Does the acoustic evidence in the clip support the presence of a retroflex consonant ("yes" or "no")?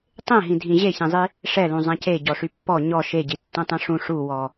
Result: yes